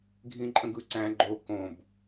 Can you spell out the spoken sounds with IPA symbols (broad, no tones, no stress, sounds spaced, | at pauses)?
ɡʱ ĩ ǃʼ ə̃ ɡ ɯ ǀ æ̃ ɡ͡ǃ o k õ b